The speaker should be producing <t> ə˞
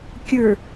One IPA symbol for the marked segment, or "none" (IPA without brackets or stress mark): kʲ